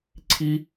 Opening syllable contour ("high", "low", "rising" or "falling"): high